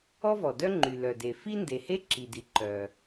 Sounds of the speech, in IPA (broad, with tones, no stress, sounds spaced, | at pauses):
ɔ˥ v ɔ˩ d œ˥ ŋ͡ǃ y˩ l œ˩ d e˩ f i˥ n d e˩ h e˥ ǁ i˩ d i˩ ǃ œ˩